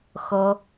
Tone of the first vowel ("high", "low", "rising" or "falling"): high